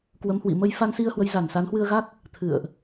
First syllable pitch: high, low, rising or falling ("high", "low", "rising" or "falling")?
rising